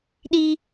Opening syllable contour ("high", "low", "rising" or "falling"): high